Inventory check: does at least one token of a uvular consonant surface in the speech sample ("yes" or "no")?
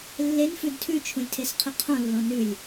yes